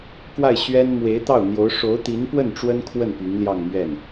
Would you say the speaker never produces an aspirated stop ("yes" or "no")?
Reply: no